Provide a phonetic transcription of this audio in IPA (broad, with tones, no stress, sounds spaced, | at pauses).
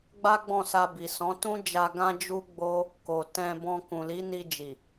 ɡ͡b a˦ ɡ͡b ɔ̃˦˨ s a˧ b i˨ s ɔ̃˨˦ t ũ˦ d͡ʒ a˧ ɡ ã˦ d͡ʒ u˦ ɡ͡b o˦ | k o˨ t ɛ̃˧ b ɔ̃˧ k ũ˨ l i˨˦ n i˧ d͡ʒ i˨